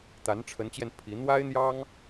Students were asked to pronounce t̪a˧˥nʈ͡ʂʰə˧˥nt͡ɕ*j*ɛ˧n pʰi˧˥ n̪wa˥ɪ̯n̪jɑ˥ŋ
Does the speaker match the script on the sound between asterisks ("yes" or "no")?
yes